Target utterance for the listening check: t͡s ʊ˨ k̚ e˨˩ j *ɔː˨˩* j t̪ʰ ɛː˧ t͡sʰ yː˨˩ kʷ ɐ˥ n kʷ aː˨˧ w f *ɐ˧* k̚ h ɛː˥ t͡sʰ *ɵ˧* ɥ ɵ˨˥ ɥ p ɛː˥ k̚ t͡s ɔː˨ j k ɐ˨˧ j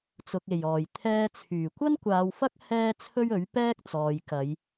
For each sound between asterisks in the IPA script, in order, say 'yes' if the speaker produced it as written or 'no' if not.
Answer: yes, no, no

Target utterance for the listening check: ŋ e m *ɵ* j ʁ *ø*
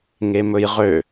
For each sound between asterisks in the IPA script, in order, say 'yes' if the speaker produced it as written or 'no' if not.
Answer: yes, yes

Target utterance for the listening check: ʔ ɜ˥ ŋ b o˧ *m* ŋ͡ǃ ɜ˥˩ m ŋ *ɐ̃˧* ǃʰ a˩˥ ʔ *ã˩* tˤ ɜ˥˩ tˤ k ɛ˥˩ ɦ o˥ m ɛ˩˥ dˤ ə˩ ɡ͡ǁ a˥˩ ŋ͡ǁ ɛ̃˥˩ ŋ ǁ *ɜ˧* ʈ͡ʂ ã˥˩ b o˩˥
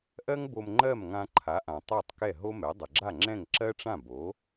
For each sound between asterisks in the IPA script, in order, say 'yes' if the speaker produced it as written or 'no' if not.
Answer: yes, no, yes, no

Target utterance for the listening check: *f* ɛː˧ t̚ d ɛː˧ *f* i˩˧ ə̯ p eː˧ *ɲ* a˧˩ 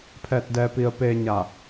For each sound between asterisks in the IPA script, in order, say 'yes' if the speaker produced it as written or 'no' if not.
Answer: no, no, yes

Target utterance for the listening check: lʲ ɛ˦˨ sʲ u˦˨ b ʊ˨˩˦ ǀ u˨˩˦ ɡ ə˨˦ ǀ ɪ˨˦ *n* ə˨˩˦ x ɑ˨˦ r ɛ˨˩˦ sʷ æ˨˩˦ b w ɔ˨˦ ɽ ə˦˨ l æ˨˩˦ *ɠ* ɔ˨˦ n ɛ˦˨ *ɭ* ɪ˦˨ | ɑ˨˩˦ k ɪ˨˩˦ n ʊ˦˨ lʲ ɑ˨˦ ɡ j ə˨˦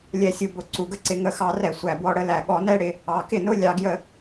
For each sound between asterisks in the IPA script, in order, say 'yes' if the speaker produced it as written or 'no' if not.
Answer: no, yes, no

